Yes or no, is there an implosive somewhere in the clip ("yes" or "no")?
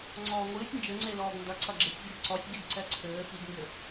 no